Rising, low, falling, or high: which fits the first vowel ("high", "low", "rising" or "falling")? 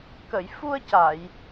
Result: low